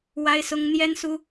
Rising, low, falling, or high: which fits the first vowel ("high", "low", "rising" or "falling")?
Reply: high